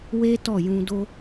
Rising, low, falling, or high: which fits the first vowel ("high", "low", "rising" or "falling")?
high